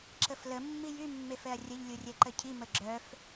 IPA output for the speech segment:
ǁ ə f l ə mː i j y mː e f ɛ ɐ̯ rʲ ə ʎ lʲ u rʲ ɛ ǃ ə cʰ i m ə ɡ͡ǁ œ f

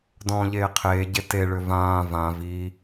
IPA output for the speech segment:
d ɔ̃ː ʎ eː qʰ eː ɟ e t e ɭ ʏ v ãː v ã v i

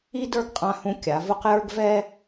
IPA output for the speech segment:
i˥ d ə˞˥˧ ɡ qʼ ã˧ h ũ˧ kʲ a˩˧ v ʊ˥˧ q j ə˞˥ ɡ v ɛ˥

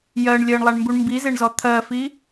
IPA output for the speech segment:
j ɜ ɳ lʲ ɜ ɳ lˠ a ɳ m b u ɳ m b i z e ɳ z ɔ t̪ʰ ɜ f i

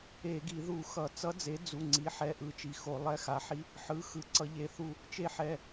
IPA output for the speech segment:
e˧˩˧ ɡ i˧˩˧ ð u˧˩˧ x ʌ˧˩˧ t͡s ʌ˧˥ d͡z e˩˥ d͡z u˩˧˩ ŋ͡ǀ i˩˥ ħ ɛ˩˧˩ ʔ ɯ˧˥ t͡ʃ i˩˧˩ x o˧˩˧ lˠ ɛ˧˥ x a˩˥ ħ i˧˥ | ħ ɯ˩˧˩ x ɯ˩˧˩ ǀ ʌ˧˩˧ ʎ e˩˧˩ θ u˥˩ | t͡ʃ e˧˥ ħ ɛ˩˧˩

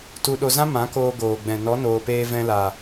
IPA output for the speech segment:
t u˧ ɗ o˧ z ã˦ m ã˨˦ k oː˧ ɡ oː˨ ɡ͡b ɛ̃˨ n ɔ˨˦ n oː˨ p eː˧ v ɛ̃˧ l a˨

